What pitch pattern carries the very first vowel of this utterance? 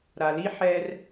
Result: low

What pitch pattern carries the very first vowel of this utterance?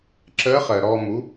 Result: rising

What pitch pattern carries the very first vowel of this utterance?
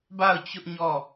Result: falling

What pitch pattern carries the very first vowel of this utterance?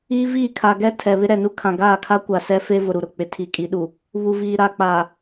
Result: high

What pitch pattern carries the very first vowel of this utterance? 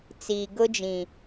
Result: low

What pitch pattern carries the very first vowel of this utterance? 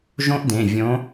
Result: high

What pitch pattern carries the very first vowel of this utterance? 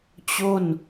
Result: falling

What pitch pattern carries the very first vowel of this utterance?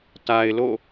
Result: low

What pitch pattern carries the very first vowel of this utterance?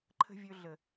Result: low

